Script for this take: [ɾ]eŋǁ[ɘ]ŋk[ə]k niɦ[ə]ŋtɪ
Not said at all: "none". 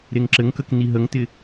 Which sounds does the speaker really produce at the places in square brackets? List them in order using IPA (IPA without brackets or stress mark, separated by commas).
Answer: ɾ, ɘ, ə, ə